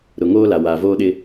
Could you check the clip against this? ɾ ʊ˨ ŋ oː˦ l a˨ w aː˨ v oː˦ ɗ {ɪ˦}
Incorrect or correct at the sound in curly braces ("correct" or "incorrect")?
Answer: correct